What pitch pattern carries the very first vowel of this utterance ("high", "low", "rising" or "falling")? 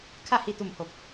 falling